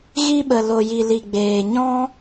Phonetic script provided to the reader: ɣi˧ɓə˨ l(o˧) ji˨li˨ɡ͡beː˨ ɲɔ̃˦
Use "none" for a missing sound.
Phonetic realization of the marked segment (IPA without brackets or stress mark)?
o˨